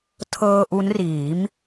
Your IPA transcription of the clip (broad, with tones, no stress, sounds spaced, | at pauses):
tʰ ɤː˧ ʔ u˦˥ n r iː˩˦ m